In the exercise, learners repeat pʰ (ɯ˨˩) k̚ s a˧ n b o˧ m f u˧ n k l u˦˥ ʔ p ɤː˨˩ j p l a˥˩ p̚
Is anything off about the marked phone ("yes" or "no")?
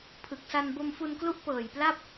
no